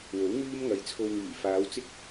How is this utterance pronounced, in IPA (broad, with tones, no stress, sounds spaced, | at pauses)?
w o˨˥ w ŋ yː˥ m ŋ ɐ˨˧ j t͡sʰ o˧ w ŋ yː˨˩ f aː˨˧ w t͡s ɪ˥ k̚